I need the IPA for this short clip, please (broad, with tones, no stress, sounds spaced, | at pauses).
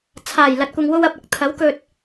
t͡sʰ aː˨˩ j l ɐ˨ t̚ kʷ ɐ˨ ŋ w o˧ w ɐ˨ p̚ ɐ˨˥ k̚ t̪ʰ ɐ˨˥ w k ɵ˧ t̚